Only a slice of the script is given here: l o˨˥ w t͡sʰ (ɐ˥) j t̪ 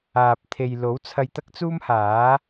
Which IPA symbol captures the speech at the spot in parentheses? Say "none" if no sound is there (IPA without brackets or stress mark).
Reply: ɐ˧